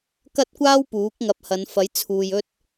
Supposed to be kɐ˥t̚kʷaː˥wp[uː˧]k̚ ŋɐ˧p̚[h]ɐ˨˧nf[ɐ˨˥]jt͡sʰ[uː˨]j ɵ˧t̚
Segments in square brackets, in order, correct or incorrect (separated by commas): incorrect, correct, correct, correct